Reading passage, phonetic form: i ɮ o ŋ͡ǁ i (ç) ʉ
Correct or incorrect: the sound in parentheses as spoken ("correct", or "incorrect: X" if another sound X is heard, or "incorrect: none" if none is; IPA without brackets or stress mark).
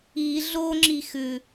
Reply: incorrect: x